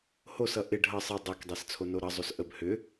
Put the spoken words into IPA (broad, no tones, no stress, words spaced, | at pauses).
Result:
hosʌ ʔɪ ɖʱʌ sˤɪ dˤekdˤest͡sʰono ɾʌzˤos ʔəb hʏ